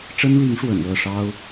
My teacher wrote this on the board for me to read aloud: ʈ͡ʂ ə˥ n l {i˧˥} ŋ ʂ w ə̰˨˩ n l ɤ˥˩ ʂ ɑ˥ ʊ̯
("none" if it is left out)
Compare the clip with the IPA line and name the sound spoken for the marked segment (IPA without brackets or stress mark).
i˧˥